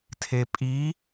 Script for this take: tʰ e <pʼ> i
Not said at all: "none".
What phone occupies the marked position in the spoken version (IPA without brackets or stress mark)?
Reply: pʼ